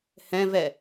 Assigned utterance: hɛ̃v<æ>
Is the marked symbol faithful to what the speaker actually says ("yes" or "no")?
no